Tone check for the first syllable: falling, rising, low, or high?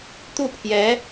falling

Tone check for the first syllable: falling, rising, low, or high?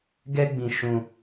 high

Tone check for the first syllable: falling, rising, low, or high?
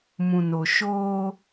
low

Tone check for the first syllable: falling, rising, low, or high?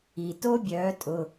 low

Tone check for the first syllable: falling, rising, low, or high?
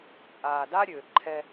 low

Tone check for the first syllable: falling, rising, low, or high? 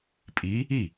rising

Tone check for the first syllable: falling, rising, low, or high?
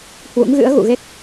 rising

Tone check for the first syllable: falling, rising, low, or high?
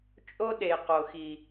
high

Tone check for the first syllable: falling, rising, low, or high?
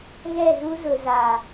falling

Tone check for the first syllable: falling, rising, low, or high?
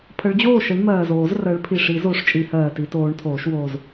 rising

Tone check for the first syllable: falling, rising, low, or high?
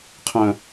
high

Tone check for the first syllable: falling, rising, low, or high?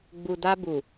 low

